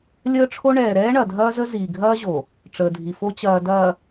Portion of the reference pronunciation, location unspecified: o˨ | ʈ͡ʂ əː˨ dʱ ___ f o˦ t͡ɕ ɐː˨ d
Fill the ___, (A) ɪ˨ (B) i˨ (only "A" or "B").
B